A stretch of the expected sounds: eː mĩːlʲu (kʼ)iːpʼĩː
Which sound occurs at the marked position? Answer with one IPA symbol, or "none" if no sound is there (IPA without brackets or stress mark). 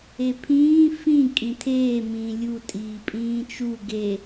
tʼ